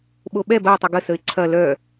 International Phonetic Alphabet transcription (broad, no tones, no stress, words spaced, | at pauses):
ɓoɓɛb ɐɪ̯tˤə ɡəsəɪ̯ ǀʰɐ lœ